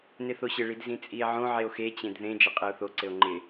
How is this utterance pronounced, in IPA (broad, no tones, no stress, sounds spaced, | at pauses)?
n ɪ θ o ɕ ɪ ɭ i d z ĩ t͡sʼ i e̯ ʕ õ ʕ e o̯ x e t͡ɕ ẽ d ð ẽ d͡ʒ ɪ qʼ e o̯ θ o ǀ ɘ o̯ ŋ͡ǃ ɪ